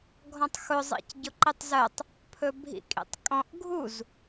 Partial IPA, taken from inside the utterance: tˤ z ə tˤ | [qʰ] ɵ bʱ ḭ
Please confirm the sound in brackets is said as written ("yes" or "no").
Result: no